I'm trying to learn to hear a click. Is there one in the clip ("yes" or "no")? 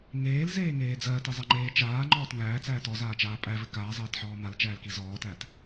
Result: yes